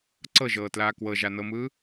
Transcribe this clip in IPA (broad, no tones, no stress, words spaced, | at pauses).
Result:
ǀɤʒɤːtlaː kwɤʒanɤmɯː